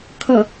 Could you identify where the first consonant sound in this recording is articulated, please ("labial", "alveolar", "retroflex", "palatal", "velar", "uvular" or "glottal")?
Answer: velar